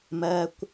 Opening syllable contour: high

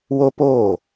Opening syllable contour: high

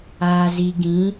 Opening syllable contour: low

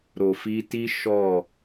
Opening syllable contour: low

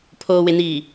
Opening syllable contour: low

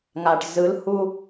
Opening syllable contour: low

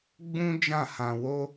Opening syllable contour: high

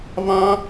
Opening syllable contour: high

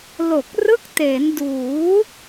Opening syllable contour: low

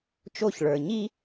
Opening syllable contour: falling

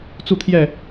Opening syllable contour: falling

